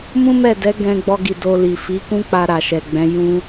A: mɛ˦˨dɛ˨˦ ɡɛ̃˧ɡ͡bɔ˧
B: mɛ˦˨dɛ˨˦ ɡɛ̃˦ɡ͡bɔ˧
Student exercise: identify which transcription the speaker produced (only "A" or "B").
A